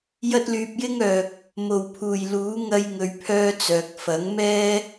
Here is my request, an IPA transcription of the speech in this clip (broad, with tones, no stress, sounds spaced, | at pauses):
j ɐ˥ t̚ l yː˧ p̚ j ɪ˥ ŋ œː˨ k̚ | m o˨˩ w pʰ uː˨˩ j l uː˨˥ ŋ ɐ˥ j ŋ ɵ˧ ɥ pʰ œː˥ t͡s œː˨ k̚ f ɐ˨˥ ŋ m ɛː˥